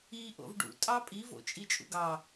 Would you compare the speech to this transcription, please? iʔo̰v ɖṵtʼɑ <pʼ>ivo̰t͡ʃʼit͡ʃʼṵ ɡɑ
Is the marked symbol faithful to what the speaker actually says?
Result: yes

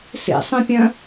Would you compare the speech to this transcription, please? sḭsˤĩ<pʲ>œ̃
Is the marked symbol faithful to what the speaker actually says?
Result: yes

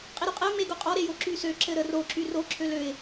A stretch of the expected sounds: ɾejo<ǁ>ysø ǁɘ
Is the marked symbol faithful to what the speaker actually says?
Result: yes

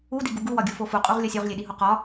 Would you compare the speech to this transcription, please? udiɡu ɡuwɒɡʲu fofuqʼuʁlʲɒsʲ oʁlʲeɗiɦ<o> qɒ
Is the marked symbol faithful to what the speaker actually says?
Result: yes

